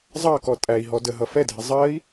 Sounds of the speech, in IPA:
zˤ ɑ k ɔ tʼ æ i̯ ɦ ɔ d ə ɦ ʌ f ɛ dʱ ɪ zˤ ɜ i̯

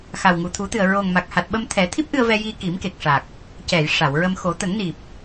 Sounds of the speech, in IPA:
x a˨˩ w ŋ u˨˩ t̪ʰ u˨˩˦ t̪ ɨ˨˩ ə̯ ɹ o˨˩ ŋ m a˨˩ k̚ h a˨˩ t̚ ɓ ə˧ m t̪ʰ ɛ˨˩˦ t̪ʰ i˦˥ p̚ ʔ ɨ˧ ə̯ v ɛ˧ j i˧ k i˨˩˦ m k e˨˩ k̚ ʂ a˨˩ k̚ | c ɛ˨˩˨ j ʂ a˨˩˨ w ɹ ə˧ m x o˨˩˦ t̪ ə˨˩˦ ŋ n i˨˩ p̚

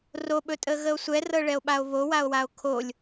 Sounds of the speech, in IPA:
r o ɓ ɵ tʼ ə ɣ ə o̯ sʷ ɛ r ɤ ɭ ɛ o̯ ɓ a o̯ β o w a o̯ w a o̯ kʰ o lʲ

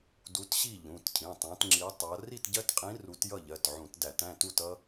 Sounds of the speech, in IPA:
d u˨˦ t ɕ i˥˨ ʎ ũ˩˧˩ t cʰ ĩ˩˧˩ tˤ æ̃˨˦ t ŋ͡ǁ i˨˦ tˤ ʌ˨˦ r i˥˨ t ɟ ɜ˦ t qʼ ĩ˨˦ r u˨˦ t j ʌ˥˨ ʎ ɜ˩˧˩ t ʕ ũ˧˩˧ t d æ˧˩˧ t æ̃˩˧˩ t u˥˨ t ʌ˦

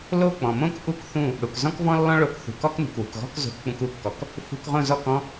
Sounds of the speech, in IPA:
l o˥˩ k͡p ɔ̃˩ m õ˥ k ʔ u˥ k θ ũ˥˩ | ɽ u˩ k z ɔ̃˥ k v ɔ̃˥ lː ɔ̃˥ ɭ o˧ k θ ṳ˩ k ɔ˥ k n ṳ˩ k w ṳ˩ k ɣ ɔ̤˥ k z o̤˧ k k͡p ũ˧ k u˩˥ kː ɔ˩ k | f ṳ˧ k ʁ õ˥˩ z ɔ˥˩ k ɔ̃˥

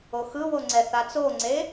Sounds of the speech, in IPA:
o x ɯ w o ŋ͡ǀ ɛ θ a t͡s o ŋ͡ǀ e

